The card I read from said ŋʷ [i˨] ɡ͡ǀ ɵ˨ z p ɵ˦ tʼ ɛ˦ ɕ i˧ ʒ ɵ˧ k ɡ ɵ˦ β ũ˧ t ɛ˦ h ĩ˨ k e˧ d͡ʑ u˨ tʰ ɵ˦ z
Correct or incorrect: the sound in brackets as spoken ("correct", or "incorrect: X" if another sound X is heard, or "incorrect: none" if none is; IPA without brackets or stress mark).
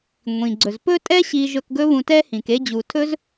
incorrect: ĩ˨